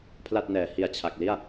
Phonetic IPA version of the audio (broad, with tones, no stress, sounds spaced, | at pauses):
pʰ l a˥˩ t̚ n ɛː˩˦ h i˨˩ a̯ t͡ɕʰ a˨˩ k̚ l i˥˩ a̯